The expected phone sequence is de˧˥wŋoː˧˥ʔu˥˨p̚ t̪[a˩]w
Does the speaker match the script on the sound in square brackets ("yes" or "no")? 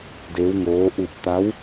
no